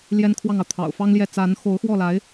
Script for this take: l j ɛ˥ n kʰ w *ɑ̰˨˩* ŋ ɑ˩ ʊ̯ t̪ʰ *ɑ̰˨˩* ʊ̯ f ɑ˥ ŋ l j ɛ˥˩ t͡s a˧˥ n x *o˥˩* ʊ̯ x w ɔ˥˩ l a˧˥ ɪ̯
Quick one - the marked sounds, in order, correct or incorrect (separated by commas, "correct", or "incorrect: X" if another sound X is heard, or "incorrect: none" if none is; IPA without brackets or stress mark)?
incorrect: ɑ˥˩, correct, incorrect: o˧˥